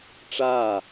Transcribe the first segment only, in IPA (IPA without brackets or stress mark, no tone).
ʈ͡ʂ